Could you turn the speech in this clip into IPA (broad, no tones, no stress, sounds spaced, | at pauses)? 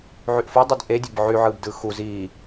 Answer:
ʕ y ʔ f o dˤ ɑ d ʔ e dʲ e b ʕ y ʕ ɯː b d ɯː x u z iː